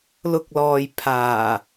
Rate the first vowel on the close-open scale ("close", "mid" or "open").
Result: close